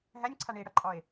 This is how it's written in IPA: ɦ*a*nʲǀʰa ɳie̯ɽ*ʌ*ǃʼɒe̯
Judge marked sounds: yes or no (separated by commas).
no, yes